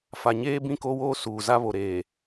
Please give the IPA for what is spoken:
f a˨ ɲ eː˦ b ĩ˦˨ k o˦ w oː˦ s uː˨ z a˦ β o˨ ɾ eː˨

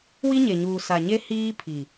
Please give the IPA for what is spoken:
w i˦ ɲ e˨ ɲ uː˨ s a˨ ɲ e˦ h iː˦ pʰ i˨

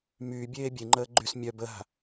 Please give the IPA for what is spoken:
m yː bʲ eː bʲ e ŋ͡ǃ əː ɡ͡ǃ y s mʲ œ b ə ɦ a̤

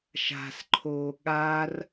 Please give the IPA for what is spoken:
ʃ a̤ s ǃʰ oː ɠ a r

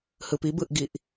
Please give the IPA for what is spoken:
h ɯ p i b ɯ ʔ ɡ i ʔ

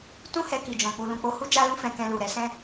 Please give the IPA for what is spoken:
t ũ˦ h ɛ˧ k i˨ d͡ʒ ɔ̃˨ k͡p u˨ l ũ˨ k͡p o˧ h u˦ d͡ʒ a˦ l ũ˦ f ɛ̃˧ k ɛ̃˧ l u˨ ɾ ɛ˧ s ɛ̃˦

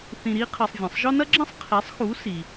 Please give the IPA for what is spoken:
θ ĩ˧ ɾ i˥ qʰ ɐ˧ sˤ vʲ ɐ̃˩ sˤ ʒ ɔ˥ n ɐ˥ ɡ͡ǁ ɐ̃˥ sˤ qʰ e˩˥ sˤ x u˩˥ s i˩

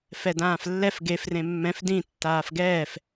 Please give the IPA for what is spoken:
f ɛ d ãː f lː ɛ f ɡ e f r ẽ mː ɛ̃ f d ĩ tː aː f ɡ ɛː f

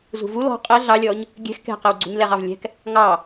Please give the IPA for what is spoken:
z ṳ v u l ɔ̤ qʼ ɛ ɮ ɑ lʲ ɔ ɲ | ɡʲ ɛ̤ x k ɛ̤ q ɛ w ɡ͡ǀ ṳ ɲ l ɛ ʁ ɑ v lʲ ɛ̤ k | ŋ ɑ

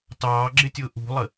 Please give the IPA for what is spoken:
t ɑː ɡ͡ǁ ɪ tʲ ʊː ʔ ṳ lˠ ə

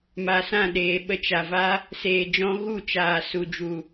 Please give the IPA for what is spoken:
m a˨ s ã˦˨ ɗ eː˨ ɓ ə˧ t͡ʃ a˨ v a˦ | s eː˨ d͡ʒ ɔ̃˧ ɣ u˦˨ t͡ʃ aː˨ s u˨ d͡ʒ u˨

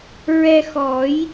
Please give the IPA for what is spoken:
ɹ ɛ˧ x ɔ˨˩˦ j

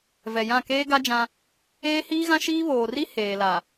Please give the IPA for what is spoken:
v ɛ˨ j ã˦˨ k eː˦ ɡ a˦ d͡ʒ ã˦ | eː˦ h iː˦ ɣ ã˦ ʃ iː˦ β oː˨ r i˦ h eː˨ l a˨

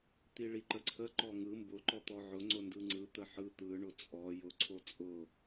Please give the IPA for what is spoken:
t̪ i ɭ i ǃ ə ǀʰ ə ǃ ɔ ŋ ɯ m b ʊ ǃ ɔ t̪ ɔ ʕ ʊ ŋ͡ǀ ʊ n d ɯ ŋ͡ǀ ɯ t̪ ə ħ ɯ t̪ ɯ ɳ ʊ t͡sʼ ɔ j ʊ ǀʰ o t͡sʼ ʊ

